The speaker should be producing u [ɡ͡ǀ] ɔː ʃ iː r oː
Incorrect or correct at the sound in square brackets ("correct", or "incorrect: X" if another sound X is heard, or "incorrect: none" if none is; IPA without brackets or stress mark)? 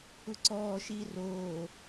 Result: incorrect: ǀ